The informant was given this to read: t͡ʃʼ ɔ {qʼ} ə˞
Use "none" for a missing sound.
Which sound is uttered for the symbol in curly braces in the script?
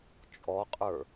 qʼ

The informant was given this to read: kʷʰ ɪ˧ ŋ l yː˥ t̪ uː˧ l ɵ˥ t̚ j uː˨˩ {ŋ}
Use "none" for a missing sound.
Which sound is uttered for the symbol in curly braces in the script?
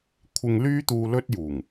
ŋ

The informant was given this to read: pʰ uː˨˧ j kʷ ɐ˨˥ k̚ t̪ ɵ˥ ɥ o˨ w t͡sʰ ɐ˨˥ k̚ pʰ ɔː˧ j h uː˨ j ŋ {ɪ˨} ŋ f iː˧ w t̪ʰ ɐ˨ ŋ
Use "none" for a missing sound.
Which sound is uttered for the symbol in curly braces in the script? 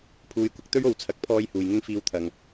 ɪ˥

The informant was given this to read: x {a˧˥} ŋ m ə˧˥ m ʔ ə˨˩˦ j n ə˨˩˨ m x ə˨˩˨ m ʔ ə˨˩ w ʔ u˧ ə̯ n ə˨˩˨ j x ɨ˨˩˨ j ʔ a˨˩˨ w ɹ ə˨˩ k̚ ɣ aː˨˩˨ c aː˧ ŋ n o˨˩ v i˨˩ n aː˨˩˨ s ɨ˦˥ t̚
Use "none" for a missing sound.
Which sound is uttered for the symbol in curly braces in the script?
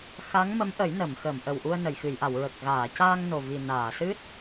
a˧˥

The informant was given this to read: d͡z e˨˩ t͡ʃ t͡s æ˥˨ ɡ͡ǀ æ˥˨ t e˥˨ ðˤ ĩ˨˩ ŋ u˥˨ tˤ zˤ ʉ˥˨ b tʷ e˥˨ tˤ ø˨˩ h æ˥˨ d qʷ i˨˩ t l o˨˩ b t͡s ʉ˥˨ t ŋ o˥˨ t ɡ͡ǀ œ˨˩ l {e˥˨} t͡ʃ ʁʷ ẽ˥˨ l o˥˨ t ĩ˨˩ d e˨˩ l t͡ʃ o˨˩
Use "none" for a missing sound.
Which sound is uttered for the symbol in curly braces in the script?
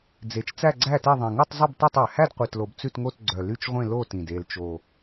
y˥˨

